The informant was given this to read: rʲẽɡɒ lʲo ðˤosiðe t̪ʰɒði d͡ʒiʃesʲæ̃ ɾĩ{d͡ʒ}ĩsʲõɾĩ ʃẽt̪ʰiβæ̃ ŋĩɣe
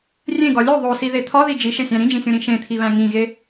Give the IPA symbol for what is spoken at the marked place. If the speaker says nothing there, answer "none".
d͡ʒ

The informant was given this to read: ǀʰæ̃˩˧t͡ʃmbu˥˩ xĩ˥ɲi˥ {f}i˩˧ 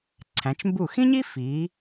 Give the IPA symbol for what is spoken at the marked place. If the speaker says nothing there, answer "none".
f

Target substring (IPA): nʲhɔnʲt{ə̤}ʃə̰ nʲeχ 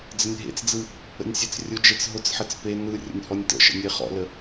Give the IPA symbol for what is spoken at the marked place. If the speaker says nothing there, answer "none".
ə̰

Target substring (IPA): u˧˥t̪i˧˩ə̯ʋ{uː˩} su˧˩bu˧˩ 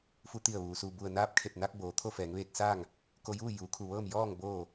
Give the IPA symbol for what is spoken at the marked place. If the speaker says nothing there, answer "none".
uː˩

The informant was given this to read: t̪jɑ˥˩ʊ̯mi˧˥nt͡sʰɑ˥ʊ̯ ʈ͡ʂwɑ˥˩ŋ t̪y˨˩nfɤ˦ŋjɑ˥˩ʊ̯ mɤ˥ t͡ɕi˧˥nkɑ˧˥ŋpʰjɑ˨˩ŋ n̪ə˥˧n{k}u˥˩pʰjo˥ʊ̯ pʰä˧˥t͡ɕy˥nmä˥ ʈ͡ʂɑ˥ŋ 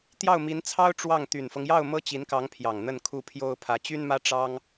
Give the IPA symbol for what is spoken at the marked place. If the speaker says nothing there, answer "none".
kʰ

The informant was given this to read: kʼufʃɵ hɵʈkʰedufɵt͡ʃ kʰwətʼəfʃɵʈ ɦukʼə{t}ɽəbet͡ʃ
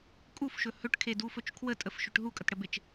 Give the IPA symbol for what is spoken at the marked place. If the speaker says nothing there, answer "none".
t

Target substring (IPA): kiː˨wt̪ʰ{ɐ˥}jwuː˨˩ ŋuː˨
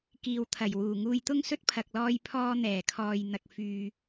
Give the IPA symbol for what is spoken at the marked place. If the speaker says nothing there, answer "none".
ɐ˨˩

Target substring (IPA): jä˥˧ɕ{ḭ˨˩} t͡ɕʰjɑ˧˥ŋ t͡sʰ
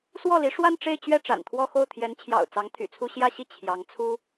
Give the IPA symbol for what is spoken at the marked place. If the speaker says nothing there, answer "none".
i˥˩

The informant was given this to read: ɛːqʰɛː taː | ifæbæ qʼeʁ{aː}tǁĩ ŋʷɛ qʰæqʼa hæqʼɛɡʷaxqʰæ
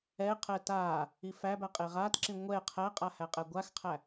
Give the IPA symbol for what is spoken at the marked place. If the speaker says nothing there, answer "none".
aː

